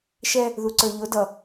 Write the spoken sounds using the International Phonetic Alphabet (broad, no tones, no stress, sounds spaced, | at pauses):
ʃ ɛ | ð u ǀ ə˞ ʎ ʊ d ʌ